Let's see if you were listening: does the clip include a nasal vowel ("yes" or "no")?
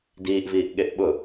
no